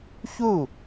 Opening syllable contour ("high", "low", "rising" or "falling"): falling